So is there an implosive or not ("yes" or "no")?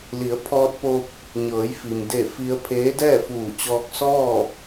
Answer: no